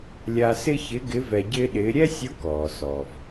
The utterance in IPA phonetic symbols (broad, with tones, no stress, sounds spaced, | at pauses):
lʲ a˧ s ɪ˥ ç ɪ˧˥ ɡ ɪ˧˥ v ɛ˧ ɟ ɪː˥ ɗ ɪː˧˥ ɾʲ ɛ˥ sʲ ʊ˧˥ k ɔː˩ s ɔ˩ v